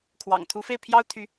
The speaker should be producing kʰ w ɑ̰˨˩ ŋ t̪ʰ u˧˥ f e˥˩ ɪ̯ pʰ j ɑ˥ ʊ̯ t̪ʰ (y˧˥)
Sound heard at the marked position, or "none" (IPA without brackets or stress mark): y˧˥